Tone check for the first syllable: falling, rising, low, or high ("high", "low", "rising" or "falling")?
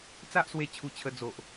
high